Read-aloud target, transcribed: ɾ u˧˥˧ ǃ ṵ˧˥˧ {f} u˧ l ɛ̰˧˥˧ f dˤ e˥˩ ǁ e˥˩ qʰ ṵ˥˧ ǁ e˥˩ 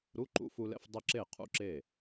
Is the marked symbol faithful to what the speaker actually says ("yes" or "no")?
yes